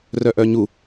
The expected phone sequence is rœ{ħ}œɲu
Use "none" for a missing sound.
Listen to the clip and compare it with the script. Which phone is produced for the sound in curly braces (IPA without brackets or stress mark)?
ʔ